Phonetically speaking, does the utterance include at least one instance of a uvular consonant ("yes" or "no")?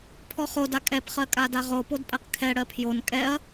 yes